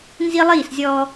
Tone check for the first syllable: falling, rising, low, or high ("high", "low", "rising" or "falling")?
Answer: high